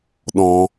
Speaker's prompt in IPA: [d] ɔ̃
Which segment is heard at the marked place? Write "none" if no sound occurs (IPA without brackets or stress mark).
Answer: ɗ